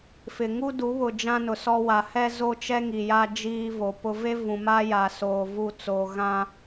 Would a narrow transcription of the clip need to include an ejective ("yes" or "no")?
no